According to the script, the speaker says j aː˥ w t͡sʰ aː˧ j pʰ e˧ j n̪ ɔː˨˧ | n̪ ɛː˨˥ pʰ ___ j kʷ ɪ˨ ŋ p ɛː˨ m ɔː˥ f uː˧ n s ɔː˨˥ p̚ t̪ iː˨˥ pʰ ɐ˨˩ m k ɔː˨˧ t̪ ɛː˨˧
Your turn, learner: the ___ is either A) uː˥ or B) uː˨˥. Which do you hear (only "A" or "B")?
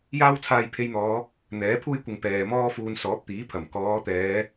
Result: A